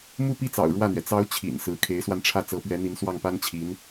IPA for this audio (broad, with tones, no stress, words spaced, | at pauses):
mu˥˧pi˥˩t͡sɑ̰˨˩ʊ̯ ɻwä˥˩n̪ɥɛ˩ t͡sɑ˧˥ʊ̯ t͡ɕʰḭ˨˩n sɹ̩˧˥ kʰe˧˥ɪ̯swa˧nʈ͡ʂʰä˥˩ t͡sɤ˧˥pɥɛ˧˥n̪i˧˥n swɑ˥˩ŋpa˥nt͡ɕʰi˧˥n